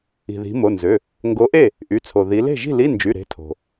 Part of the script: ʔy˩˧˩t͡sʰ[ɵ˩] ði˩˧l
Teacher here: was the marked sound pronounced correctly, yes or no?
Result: no